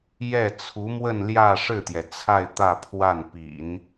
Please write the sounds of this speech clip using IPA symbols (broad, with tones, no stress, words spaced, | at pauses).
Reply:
jɛ˥˩ t͡sʰu˧˥mwə˥˧nljä˥˧ ʂɻ̩˥˩t̪jɛ˩t͡sʰa˥˧ɪ̯ t̪ä˥˧pʰwa˥˩n pḭ˨˩˦n